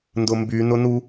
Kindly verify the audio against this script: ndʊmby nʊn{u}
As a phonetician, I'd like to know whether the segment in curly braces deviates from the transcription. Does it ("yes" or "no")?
no